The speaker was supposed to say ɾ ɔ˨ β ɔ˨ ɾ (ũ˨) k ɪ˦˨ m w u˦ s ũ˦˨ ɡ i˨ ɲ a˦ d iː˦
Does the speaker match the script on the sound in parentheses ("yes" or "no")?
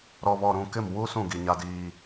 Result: yes